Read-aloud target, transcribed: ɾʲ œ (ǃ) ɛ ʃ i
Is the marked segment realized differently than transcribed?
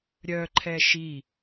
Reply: yes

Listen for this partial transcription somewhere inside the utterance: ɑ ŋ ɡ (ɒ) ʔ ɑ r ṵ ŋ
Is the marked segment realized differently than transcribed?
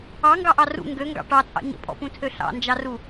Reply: yes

